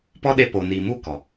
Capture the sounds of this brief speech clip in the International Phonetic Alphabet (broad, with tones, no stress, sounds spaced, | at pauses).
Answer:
p ɔ˦ ɗ e˧ p o˨ n iː˨ m u˦˨ k ɔ˨